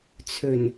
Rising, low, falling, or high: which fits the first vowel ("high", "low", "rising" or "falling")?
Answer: low